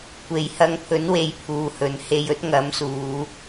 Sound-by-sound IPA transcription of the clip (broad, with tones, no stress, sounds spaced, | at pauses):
kʷ e˨ j h ɐ˧ ŋ pʰ ɵ˨˥ n w e˨ j pʰ uː˨ h ɵ˨ n h e˧ j ɵ˥ t̚ ŋ ɐ˨˥ m s uː˨˧